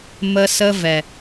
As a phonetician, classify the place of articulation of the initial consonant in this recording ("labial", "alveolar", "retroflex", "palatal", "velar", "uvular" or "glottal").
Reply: labial